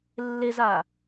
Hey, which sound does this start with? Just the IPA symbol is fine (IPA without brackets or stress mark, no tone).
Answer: lː